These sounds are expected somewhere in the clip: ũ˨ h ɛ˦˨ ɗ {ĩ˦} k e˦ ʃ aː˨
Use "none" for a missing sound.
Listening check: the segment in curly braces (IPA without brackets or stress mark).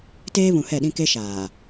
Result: ĩ˦